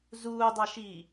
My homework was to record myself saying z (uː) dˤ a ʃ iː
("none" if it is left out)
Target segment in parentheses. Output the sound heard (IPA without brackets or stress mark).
uː